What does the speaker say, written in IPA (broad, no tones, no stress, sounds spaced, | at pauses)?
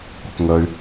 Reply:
kʷ ə k ŋ ə y̯